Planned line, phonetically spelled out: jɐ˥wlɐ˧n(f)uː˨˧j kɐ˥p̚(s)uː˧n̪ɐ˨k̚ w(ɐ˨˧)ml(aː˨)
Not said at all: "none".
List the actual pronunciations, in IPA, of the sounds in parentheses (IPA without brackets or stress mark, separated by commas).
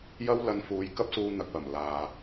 f, s, ɐ˨˩, aː˨